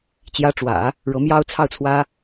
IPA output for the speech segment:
t͡ɕ j ä˧˥ ʈ͡ʂ w ä̰˨˩˦ | ɻ ɤ˧˥ m j ɑ˥ ʊ̯ t͡sʰ ɑ˥˩ ʊ̯ t͡sʰ w ä˥

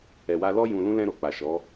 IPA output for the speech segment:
ɛ˨ w a˧ l ɔ˦ j ũ˧ l ũ˦ l ɛ̃˧ ɾ o˨ k͡p a˨ ʃ ɔ˨˦

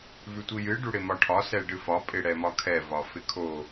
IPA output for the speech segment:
v ʉ tʷ i j ɨ ɖ u ɽ ɪ m ɒ ʈʰ ɒ s ɛ ɖ ɨ f ɒ pʼ ɪ ɽ ɛ m ɒ kʰ ɛ v ɒ f ɪ kʰ o

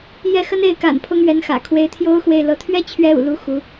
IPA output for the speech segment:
j ɛ˥˩ x ə˥ n e˥˩ ɪ̯ k a̰˨˩ n pʰ ʊ˥ ŋ ɥ ɛ˧˥ n x ä̰˨˩ kʰ w e˧˥ ɪ̯ t̪ʰ j o˥ ʊ̯ x w e˥˩ ɪ̯ l ɤ˧˥ t̪ʰ ɥ ɛ˥ t͡ɕʰ ɥ ɛ˧˥ ṵ˨˩ l u˥ x u˧˥

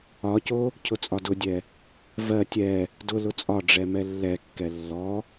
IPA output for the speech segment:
ɒ c o | cʰ ʊ t͡sʼ ɒ d ʊ dʲ ɛ | v ɜ tʲ ɛ | d ʊ l ʊ t͡sʼ ɒ ɖ͡ʐ ɛ m ɛ lː ɛ kː ɛ lː ɔ

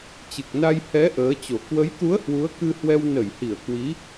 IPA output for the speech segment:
t͡ɕ ɨ˨˩ k̚ n a˧ j h ɛ˨˦ ʔ əː˨˦ t͡ɕ o˨˩ k w ə˨˦ j t̪ u˨˦ ə̯ h w u˨˦ ə̯ k ɨ˧ h w ɛ˧ w n ə˧˩ j h i˧˩ ə̯ k w i˨˦

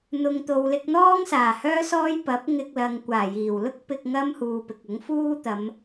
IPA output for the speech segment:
n̪ ʊ˨ ŋ t̪ o˨ w l ɪ˧ k̚ n̪ ɔː˥ ŋ s aː˨˩ h œː˥ s ɔː˥ j p ɐ˨˥ p̚ ŋ ɪ˧ k̚ l ɐ˨ ŋ kʷ aː˨˩ j iː˨˩ w l ʊ˥ k̚ p ɪ˧ k̚ ŋ ɐ˥ m h uː˨ p ɪ˨ k̚ ʊ˨˥ ŋ f uː˥ t̪ ɐ˨˧ m

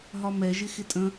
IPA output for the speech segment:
ɦ ɒ m ɛ ʒ ɪ x ɪ tʼ ə̃

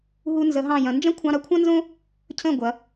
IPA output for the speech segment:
ɦ u˧ n z ə˩˧ ɦ ɑ̃˧˩ j ɐ̃˩˧ n d͡ʒ ɐ̃˥ kʷʰ ɑ̃˧ ɾ ɐ˧ kʷʰ ɐ̃˥ n z õ˥ | cʰ ə̃˧˩ ɡʷ ɐ˩˧

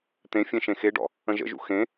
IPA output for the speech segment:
t̪ ẽ fʲ ẽ ʃ ẽ x e ɖ ɔ̰ | ə̃ ʒ ə̰ ʒ ṵ x ẽ

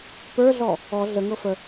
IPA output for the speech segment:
p ə˞ ɮ ɔ | ɔ ɮ ə ŋ ɤ f ə

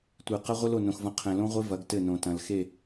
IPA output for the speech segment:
tʷ e˨ q ɐ˦ ʁʷ ɘ˦ l o˨ n õ˨ x v ɐ̃˦ qʰ ɛ̃˨ l õ˦ ʁʷ e˦ v ɐ˨˦ ɡ t ɘ˦˨ n õ˨ t ɐ̃˨ l x e˦˨

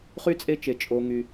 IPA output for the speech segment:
χ y˥ t͡sʼ e˥ t͡ʃ e˧˩ t͡ʃʼ o˧ ŋ y˧

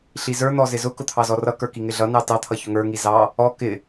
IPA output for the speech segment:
ɬ i z ə˞ n̪ ɔ z ɪ z ʊ k ʊ t̪ʰ ɑ z ɔ r ʌ k ə˞ k i ŋ ɪ ɮ ʌ n ɑ t ɑ t̪ʰ ʌ ç ʊ ŋ ə˞ ŋ i z ɑ | ɔ k ɪ

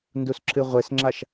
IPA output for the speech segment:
n d u s ǁ ɨ ʁʷ e s ŋ͡ǁ a ʃ

